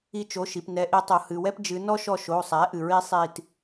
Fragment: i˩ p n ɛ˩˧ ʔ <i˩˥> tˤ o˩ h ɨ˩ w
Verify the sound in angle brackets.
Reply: incorrect: i˩˧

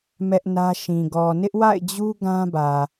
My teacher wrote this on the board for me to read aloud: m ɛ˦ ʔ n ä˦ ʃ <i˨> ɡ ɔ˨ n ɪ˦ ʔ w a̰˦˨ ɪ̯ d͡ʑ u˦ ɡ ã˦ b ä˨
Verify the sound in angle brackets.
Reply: incorrect: ĩ˨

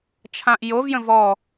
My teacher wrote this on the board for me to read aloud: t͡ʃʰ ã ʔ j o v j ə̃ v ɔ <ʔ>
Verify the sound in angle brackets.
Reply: incorrect: none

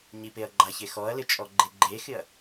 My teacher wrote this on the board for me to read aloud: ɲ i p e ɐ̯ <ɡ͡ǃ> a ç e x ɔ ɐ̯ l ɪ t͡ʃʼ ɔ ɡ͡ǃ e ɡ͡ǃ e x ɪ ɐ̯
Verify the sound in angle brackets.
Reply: correct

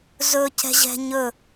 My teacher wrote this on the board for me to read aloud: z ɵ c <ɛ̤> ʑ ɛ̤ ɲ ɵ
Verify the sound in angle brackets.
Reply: correct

